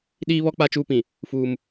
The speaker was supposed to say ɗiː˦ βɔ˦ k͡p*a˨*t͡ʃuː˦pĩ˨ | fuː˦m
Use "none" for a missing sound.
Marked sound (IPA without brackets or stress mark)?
a˦